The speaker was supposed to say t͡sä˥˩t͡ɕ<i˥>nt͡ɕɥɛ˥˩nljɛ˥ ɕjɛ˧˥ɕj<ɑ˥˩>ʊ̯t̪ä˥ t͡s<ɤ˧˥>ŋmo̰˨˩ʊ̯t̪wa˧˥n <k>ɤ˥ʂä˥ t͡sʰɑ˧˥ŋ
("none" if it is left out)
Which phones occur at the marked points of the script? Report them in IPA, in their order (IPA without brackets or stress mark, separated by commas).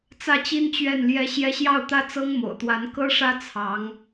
i˥, ɑ˥˩, ɤ˥, k